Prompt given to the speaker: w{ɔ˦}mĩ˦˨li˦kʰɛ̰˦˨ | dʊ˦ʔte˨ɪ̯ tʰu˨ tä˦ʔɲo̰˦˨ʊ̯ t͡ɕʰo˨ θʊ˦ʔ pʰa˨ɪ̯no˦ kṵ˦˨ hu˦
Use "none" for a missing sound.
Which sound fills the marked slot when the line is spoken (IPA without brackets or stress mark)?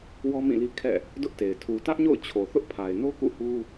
ɔ˦